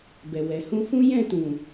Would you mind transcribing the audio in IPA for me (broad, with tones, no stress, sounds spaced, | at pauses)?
b ɛ˨ w ɛ˨ h ũ˧ f ũ˦ j ɛ̃˦˨ t ũ˨